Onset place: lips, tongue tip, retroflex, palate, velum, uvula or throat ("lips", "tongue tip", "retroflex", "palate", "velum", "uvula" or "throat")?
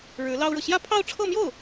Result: retroflex